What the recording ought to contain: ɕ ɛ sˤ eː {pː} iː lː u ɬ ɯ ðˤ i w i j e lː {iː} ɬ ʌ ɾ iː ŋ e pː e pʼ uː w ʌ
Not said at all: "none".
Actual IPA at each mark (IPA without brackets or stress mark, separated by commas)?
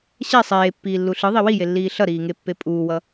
pː, iː